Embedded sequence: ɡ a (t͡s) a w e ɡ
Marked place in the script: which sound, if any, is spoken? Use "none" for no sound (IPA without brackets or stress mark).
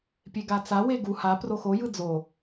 t͡s